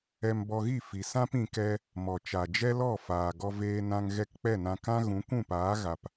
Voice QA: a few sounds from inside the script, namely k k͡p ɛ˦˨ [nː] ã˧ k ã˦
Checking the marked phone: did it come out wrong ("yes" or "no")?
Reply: yes